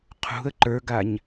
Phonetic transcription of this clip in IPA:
qʰṳə̯ ǃə˞ɡaɲ

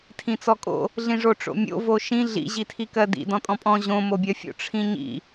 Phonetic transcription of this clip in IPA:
tʰĩt͡sɔkʼo̰ | ɮĩʐoʈ͡ʂo̰mʲo̰ voʃĩ ɮḭ ʑitʰikɜdḭ dɔ̃tʼɔ̃pʼɔ̃ ʑõ mobʲɜfʲo̰ ʈ͡ʂʰĩɲḭ

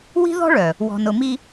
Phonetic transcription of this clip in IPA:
wi̤˦ðɔ̤˦ɭœ˨ | wɔ̤˨nʊ˨mi˦

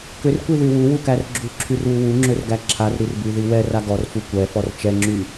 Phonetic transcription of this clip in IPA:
kʏrkʷiðy wuwukær ɡ͡ǁuǁʰyrwu wuŋ͡ǁʏrɡæ ǁʰarɾirbyði wɛra ɡɔrfu kʷɛfɔr t͡ʃɛŋ͡ǁy

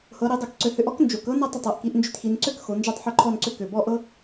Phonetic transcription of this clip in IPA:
hɤ˩˧ɾi˩˧dˤɤ˨˩kǀø˨˩ hʏ˧ʔɔ˥k nd͡ʒo˩˧kɤ˥ nɤ˥˧tˤʏ˨˩tˤ ɤ˨˩ʔki˩˧ʔ nd͡ʒʏ˧txi˩˧n ǀø˥˧kxo˩˧ nd͡ʒɤ˥˧tˤħʏ˥˧ǃʰɔ˥˧nǀʏ˥˧ kø˨˩bɔ˥˧ʔɤ˥

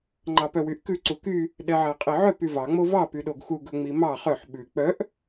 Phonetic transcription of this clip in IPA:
ŋ͡ǃɑpœwyʔkʉ ǀuky | ɗɛʕæqʼiʕœp yvɑ ŋ͡movɑ pyɗoɡxu ɡɵŋ͡mimɑ χœħ ɓʉ k͡pœʔ

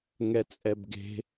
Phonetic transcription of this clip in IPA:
ŋɛt͡sʼɛbɡe̤

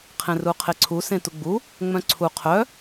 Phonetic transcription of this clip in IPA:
qʰẽruqʰeǀʰu sẽtuɡ͡bu | ŋ͡mœ̃ǀʰu qʰœ

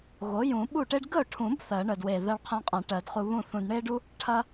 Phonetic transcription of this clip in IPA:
ɣo˩˥jũ˨˩˦ ɓu˥˩ʈe˥ɖ ɡə˥˩ʊ̯ʈʰũ˨˩˦b θɜ˨˩˦ɳə˨˩dwe˨˩ ðɜ˧ɭqʰẽ˧qʼɐ̃˨˩˦ ʈɜ˨˩˦dχu˧βũ˥˩ θũ˧d ɳe˥ɖu˥ | ʈʰɐ˥

